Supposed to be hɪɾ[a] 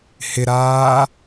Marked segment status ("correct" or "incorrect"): incorrect